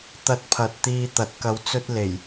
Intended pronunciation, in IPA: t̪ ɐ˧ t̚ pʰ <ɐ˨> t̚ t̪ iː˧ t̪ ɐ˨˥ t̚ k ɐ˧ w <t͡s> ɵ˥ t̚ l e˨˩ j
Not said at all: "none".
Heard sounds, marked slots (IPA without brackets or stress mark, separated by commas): ɐ˨, t͡s